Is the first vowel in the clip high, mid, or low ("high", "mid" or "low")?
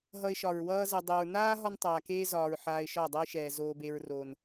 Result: mid